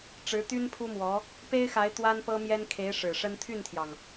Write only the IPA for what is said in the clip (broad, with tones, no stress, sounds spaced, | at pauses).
ʈ͡ʂ ɻ̩˧˥ t̪ y˥ n pʰ u˥ m w ɔ˧˥ | p e˥ ɪ̯ x a˧˥ ɪ̯ t̪ w a˥ n p ɤ˥ m j ɛ˥ n kʰ e˧˥ ɪ̯ ʂ ɻ̩˨˩ ʂ ə˥ n t̪ʰ y˥˩ n t̪ʰ j ɑ˩ ŋ